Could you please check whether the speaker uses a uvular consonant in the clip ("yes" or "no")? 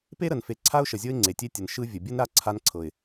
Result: no